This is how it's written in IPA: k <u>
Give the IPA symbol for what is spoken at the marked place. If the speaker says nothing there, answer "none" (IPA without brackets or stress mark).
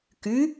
y